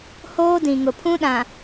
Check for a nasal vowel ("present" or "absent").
present